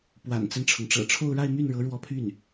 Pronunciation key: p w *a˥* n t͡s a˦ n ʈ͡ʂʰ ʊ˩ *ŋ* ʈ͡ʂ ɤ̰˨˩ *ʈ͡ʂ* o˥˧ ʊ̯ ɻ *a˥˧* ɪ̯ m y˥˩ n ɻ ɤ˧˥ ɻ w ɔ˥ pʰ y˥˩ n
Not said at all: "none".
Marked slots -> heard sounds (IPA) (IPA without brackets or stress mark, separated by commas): a̰˨˩, ŋ, ʈ͡ʂʰ, a˥˧